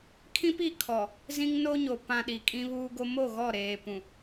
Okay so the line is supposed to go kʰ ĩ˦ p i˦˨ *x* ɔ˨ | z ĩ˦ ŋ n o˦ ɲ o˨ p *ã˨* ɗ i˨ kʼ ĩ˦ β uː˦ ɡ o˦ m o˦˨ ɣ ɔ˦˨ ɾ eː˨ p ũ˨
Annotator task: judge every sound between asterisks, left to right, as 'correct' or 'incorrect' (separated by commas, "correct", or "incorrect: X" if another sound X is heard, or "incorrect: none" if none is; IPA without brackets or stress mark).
incorrect: kʰ, correct